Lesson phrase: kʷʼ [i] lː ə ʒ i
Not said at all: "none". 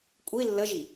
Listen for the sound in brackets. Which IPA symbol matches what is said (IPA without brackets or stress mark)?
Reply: i